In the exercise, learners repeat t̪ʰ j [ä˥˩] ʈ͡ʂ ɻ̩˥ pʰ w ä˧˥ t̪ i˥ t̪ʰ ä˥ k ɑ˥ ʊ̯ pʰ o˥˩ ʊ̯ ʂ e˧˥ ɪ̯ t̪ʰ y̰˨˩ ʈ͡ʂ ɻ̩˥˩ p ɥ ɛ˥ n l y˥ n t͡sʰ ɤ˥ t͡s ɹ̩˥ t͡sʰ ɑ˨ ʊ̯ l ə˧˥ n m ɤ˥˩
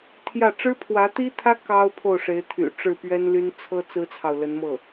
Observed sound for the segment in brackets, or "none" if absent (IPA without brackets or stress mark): ä˥˩